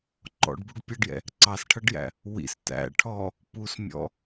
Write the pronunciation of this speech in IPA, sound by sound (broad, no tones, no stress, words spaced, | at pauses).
ǃɔ̰ɖbuɖ pʲʌɖjɛ̰ | ǀɑsʈʰʌɖjæ̰ | wḭs tæ̰ ʈʰɔ | pusmʲɔ̰